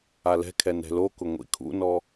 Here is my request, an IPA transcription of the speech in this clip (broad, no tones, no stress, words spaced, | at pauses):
alɛ̤kʰɛ nɛ̤lokʊ ŋʷḭkʰṵnɔ